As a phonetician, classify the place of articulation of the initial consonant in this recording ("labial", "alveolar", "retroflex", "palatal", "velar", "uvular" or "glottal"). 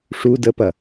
retroflex